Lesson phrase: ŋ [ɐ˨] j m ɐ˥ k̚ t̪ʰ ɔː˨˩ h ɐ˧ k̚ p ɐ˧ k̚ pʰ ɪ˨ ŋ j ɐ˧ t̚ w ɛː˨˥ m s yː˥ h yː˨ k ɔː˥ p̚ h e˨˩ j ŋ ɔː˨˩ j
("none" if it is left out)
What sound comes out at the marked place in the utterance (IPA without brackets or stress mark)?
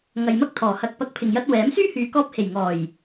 ɐ˨